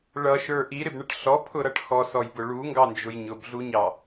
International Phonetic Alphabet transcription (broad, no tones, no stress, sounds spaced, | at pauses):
ɭ ʌ ʃ ə˞ ʔ i ɾ ɪ b ɳ ə ʈ ɬ ɔ pʰ ʊ ɾ ʌ ʈ x ɔ s ɔ j b ʊ ɭ u ŋ ɡ ɑ n d͡ʒ ʊ j ɲ ʊ b ɮ u ɲ ɑ